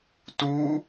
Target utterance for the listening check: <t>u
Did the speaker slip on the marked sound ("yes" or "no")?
no